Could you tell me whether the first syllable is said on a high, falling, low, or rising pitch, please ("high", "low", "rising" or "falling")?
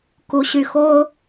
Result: rising